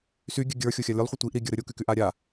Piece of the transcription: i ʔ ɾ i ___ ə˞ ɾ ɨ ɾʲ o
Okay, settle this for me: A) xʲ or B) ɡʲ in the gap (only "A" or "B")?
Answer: B